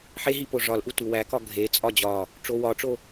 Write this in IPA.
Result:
ħ e ɦ i p o ʐ ɒ l ʔ u t u w æ k ɒ ɡʱ e t͡sʼ ɒ d͡ʑ ɒ | ʈ͡ʂ o w ɒ ʈ͡ʂ o

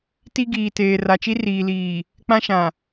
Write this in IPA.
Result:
t i˦ ɡ iː˨ t eː˨ r a˨ t͡ʃ i˦ r iː˨ l iː˨ | k͡p ã˦ ʃ ã˨

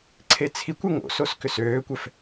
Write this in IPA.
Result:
ǀʰ e t͡sʰ i kʷ ɛ ŋ o̰ s o s k ʏ s øː kʷ ɛ f

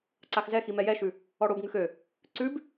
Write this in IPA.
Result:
ǀ a x z ɛ x i m ɛ j ɛ ʃ ʉ | ɔ ɽ o b ŋ ʉ x ø | ǀ ʉ b

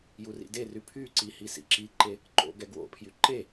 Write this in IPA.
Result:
j u r ḭ d e r y pʰ y ǀ i h i s ḭ ǁ i ǃ e | ǃ o̰ ɡ ɛ ɡ w o̰ pʰ j y ǃ e

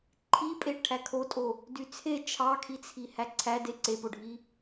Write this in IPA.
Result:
ǃʰ i pʼ e ʈʰ æ kʰ o tʼ o | d y t͡sʰ e t͡ʃʰ ɑ kʰ i t͡sʰ i h æ ǀʰ æ d e ǀ e p o ɖʱ i

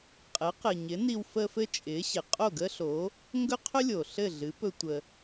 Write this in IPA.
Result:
qʼ ɘ˩˥ q ɘ˩ ɲ ɪ˩˥ n i˧ w f ə˧ f ɘ˥ t͡ʃʼ ɪ˩˥ ɕ ɪ˩ qʼ o˥˩ ɡ ə˥ ɬ o˩˥ | ŋ ɡ ɵ˥ qʰ ɵ˥ lʲ o˩ ɬ ɘ˥˩ ɮ ɨ˩˥ p ɵ˧ tʷ ə˩

